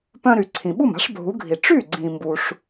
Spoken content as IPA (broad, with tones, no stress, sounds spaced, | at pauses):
p œ̃˧ ɾ y˩ ǀʰ ĩ˩ ɓ u˥˩ m a̤˥ ʂ bʱ u˩˥ ɡʱ i˩ ʈ͡ʂ y˥˩ ɡ͡ǀ ĩ˩ m b u˩ ʂ